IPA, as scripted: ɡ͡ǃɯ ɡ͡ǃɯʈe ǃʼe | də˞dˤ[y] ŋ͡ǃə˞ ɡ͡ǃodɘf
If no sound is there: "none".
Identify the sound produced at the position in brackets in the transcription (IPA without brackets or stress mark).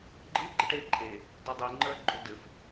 i